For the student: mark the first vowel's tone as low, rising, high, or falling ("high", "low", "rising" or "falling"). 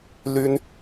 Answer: high